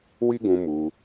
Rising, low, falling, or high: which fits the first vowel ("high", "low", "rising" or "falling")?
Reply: high